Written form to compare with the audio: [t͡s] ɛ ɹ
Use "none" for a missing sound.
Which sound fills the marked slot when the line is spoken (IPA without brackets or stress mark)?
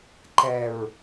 ǃ